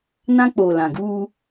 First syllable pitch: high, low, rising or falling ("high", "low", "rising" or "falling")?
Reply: high